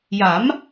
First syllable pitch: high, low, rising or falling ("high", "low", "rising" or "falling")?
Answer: rising